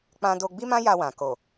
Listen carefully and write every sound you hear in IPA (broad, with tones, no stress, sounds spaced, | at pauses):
k͡p ã˦ d o˧ ɡ͡b i˦ m ã˦ j a˧ w ã˨ k o˨